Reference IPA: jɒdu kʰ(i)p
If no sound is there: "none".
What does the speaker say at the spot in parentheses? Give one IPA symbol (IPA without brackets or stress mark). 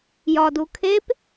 e